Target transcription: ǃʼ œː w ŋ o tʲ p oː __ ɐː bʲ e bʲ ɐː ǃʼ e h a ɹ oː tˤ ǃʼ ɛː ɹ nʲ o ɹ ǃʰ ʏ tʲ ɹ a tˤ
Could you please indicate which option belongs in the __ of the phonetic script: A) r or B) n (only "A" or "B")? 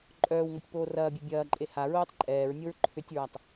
A